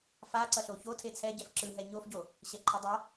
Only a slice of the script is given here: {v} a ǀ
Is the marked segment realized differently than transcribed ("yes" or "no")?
yes